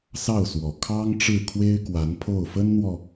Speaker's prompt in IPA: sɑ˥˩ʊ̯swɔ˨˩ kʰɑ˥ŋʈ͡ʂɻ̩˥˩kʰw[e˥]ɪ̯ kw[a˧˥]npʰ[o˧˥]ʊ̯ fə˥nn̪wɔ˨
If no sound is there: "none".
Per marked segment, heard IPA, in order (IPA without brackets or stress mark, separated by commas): e˥, a˧˥, o˥˩